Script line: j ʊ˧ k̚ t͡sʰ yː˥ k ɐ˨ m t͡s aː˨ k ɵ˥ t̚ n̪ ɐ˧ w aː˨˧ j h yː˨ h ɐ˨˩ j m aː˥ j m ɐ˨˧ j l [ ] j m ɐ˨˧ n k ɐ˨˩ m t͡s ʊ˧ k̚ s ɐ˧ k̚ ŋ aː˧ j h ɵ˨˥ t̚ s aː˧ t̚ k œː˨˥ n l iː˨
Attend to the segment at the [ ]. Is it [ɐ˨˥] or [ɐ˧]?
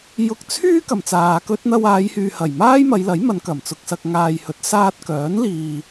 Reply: ɐ˨˥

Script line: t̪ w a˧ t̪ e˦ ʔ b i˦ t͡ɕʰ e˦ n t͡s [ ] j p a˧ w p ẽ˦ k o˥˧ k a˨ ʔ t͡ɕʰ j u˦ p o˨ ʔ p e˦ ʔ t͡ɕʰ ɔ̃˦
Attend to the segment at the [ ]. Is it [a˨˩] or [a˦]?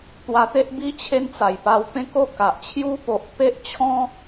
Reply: a˨˩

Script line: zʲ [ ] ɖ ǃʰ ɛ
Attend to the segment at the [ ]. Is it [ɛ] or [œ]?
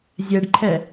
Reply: ɛ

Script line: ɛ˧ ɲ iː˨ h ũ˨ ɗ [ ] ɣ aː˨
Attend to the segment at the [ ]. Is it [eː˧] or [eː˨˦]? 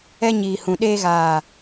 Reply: eː˧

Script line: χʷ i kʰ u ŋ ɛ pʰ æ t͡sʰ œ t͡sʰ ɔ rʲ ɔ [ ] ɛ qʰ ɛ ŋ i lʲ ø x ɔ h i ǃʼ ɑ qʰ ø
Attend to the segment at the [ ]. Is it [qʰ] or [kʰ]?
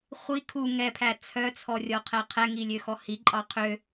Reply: qʰ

